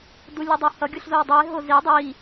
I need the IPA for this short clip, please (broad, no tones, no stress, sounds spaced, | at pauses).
d u lʲ u dˤ o h ʌ ɡʲ u ɬ z o w dˤ u ɪ̯ ɦ o z i dˤ i